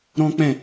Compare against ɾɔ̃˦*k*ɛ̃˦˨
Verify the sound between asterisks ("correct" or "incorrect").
incorrect